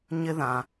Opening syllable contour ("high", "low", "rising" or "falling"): high